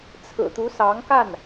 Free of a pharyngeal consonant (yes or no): yes